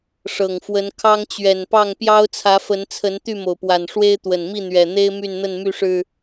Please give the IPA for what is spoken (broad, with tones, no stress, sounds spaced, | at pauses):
ʂ ɤ˨˩ ŋ f w ə˨˦ n kʰ ɑ˦ ŋ t͡ɕ ɥ ɛ˨˩ n p ɑ˥˨ ŋ p j ɑ˦ ʊ̯ t͡sʰ ä˨˦ f ə˨˦ n t͡sʰ ə˨˦ n t̪ y˥˨ m o˩ ʊ̯ p w a˨˩ n ʂ w e˦ ɪ̯ t̪ w ə˨˩ n m i˥˨ n̪ ɥ ɛ˨˩ n̪ e˦ ɪ̯ m y˥˨ n n̪ ə˥˨ n m y˥˨ ʂ ɻ̩˨˩